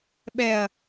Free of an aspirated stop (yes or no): yes